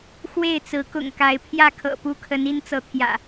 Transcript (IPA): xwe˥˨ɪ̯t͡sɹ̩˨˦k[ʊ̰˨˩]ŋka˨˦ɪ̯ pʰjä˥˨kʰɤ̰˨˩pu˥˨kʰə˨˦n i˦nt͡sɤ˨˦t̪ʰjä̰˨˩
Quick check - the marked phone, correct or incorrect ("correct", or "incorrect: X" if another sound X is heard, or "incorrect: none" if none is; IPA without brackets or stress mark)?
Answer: correct